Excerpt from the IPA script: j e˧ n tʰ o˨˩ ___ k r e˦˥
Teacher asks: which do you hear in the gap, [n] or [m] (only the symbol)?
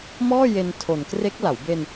n